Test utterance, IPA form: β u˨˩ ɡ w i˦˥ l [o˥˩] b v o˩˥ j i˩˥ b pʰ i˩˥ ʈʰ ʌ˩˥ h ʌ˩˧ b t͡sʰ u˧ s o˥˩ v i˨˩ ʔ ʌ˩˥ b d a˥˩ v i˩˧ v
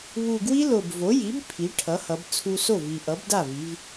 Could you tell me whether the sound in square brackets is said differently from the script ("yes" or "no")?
yes